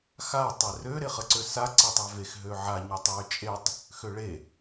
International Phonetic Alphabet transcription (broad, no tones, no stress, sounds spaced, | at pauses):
x a tˤ e r ø ɾ e χ ə ǀ ø s a ǀ e tˤ a v e x ɦ ø ʕ a ɲ ø tˤ w ø t͡ʃʼ e tˤ | x ø ɭ e